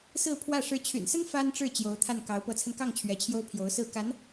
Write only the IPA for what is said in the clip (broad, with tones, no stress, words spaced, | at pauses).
sɹ̩˥˧pʰwä˥˩ ʂɻ̩˧˥t͡ɕʰy̰˨˩nsə˥n fa˥nʈ͡ʂɻ̩˥˩ t͡ɕjo˧˥ʊ̯t̪ʰa˥˩n kɑ˧˥ʊ̯ pɤ˧˥t͡sʰə˧nkɑ˥˩ŋ t͡ɕʰɥɛ˧˥t͡ɕʰjo˥ʊ̯ pʰjo˧˥ʊ̯sɹ̩˥˩ ka˧˥n